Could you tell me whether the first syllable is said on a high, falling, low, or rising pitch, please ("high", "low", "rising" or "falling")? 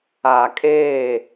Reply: low